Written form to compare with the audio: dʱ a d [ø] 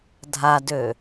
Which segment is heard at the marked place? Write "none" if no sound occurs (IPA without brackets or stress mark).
ø